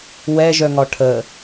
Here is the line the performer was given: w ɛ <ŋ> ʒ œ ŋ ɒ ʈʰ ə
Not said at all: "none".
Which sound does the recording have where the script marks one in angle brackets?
none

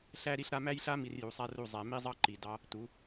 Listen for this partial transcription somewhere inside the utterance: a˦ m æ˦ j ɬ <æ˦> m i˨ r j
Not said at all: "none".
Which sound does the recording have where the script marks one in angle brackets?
a˦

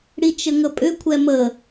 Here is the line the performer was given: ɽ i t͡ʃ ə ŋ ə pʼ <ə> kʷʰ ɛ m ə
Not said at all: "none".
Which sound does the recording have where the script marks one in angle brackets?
ʏ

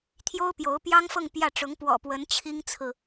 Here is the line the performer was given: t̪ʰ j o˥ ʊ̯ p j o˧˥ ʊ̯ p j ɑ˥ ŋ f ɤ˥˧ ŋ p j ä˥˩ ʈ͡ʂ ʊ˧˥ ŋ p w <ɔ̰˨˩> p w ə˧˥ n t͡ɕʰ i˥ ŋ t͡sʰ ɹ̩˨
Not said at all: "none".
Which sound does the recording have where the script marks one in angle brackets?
ɔ̰˨˩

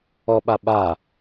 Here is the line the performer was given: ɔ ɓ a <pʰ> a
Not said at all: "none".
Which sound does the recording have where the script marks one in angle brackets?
ɓ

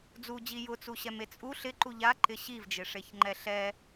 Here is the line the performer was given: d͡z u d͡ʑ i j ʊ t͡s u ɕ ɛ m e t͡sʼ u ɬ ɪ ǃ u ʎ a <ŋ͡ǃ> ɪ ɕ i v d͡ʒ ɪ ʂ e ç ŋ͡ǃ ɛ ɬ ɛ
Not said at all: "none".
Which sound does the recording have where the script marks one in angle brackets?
ǃ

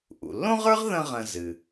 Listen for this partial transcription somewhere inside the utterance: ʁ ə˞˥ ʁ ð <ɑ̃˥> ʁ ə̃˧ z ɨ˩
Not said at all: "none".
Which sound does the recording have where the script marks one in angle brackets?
ə̃˥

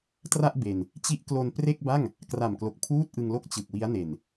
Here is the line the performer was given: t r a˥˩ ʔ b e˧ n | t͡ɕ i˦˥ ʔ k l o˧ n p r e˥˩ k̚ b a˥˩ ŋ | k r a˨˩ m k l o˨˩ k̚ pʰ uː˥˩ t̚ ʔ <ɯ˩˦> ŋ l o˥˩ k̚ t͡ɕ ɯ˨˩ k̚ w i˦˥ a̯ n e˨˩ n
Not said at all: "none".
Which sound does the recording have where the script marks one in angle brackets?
ɯ˧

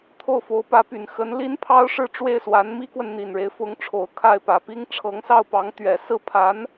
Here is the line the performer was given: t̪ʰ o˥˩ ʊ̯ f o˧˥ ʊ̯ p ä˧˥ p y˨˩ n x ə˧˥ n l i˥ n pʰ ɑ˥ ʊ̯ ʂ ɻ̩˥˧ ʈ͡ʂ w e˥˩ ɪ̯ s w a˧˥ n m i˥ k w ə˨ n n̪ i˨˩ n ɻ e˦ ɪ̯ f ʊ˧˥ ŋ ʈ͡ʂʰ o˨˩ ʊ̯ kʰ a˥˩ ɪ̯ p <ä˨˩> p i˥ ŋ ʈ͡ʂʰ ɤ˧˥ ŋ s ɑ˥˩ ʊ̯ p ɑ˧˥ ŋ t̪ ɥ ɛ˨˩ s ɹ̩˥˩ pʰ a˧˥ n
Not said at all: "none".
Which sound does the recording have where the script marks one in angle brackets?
ä˨˩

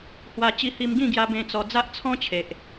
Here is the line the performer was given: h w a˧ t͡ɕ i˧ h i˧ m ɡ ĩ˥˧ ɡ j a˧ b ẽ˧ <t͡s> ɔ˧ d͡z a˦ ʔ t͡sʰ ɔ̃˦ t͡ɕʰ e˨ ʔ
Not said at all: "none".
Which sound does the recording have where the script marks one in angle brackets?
t͡s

